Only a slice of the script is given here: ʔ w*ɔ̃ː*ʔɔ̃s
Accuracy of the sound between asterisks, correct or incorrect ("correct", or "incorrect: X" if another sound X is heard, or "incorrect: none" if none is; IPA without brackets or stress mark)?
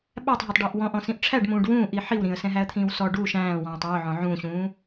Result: incorrect: ɔ̃